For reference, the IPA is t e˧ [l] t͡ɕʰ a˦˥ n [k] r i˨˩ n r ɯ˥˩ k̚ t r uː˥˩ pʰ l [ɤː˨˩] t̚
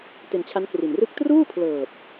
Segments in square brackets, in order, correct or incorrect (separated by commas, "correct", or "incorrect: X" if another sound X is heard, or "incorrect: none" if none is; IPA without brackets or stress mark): incorrect: n, correct, correct